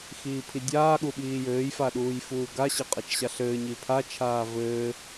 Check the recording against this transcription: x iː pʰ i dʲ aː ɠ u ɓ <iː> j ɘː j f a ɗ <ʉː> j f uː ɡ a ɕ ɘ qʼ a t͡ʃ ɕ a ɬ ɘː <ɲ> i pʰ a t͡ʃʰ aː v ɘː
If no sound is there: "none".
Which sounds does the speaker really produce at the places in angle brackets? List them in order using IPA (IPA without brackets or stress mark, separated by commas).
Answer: iː, uː, ɲ